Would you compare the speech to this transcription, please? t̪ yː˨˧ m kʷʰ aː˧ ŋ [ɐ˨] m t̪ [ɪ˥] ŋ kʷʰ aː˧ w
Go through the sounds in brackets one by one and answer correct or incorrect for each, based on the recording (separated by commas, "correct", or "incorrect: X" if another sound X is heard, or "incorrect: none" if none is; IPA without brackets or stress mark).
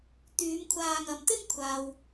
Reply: correct, correct